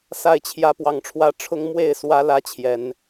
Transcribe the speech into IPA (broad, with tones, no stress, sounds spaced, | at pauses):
s a˥˨ ɪ̯ t͡ɕʰ j ä˦ p w ɑ˨˦ ŋ ʈ͡ʂʰ w ä˦ ʈ͡ʂʰ ʊ˦ ŋ m w e˥˨ ɪ̯ s w ä˦ l ä˦ t͡ɕʰ j ɛ˨˦ n